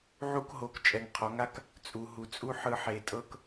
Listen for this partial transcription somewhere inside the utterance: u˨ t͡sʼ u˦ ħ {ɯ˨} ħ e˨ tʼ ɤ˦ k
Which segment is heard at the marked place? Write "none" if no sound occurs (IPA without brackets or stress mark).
ɯ˨